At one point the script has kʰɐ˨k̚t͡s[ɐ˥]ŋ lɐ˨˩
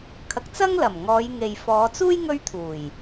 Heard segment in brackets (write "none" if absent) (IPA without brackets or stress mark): ɐ˥